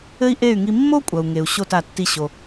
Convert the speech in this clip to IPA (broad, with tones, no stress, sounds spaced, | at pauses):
ɘ˥ i̯ ʔ e˥˩ y̯ ŋ i˧ mː o˥ kʷʼ ɐ˩ u̯ ŋ e˩ u̯ ɕ o˥˩ t a˩ tː i˧ ɕ o˩